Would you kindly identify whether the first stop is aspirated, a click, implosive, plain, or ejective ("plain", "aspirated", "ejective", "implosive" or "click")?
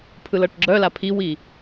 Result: aspirated